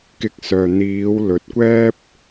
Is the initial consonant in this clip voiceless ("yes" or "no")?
yes